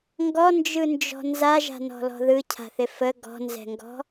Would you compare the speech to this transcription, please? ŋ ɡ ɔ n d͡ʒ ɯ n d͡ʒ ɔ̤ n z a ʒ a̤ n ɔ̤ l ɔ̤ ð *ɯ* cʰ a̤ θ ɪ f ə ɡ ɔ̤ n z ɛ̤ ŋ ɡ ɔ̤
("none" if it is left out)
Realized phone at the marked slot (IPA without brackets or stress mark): ɯ